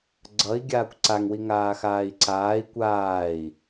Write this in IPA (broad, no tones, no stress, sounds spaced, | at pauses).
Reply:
ɡ͡ǀ ʌ i̯ ɡʲ aː kʷ ǀ a ŋ w i ŋ aː x aː i̯ ǀ aː i̯ kʷ aː i̯